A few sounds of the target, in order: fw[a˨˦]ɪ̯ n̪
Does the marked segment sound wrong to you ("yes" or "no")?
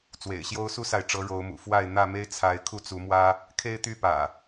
yes